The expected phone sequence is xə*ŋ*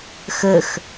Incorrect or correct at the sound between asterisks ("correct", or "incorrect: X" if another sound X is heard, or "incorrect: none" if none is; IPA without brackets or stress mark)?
incorrect: x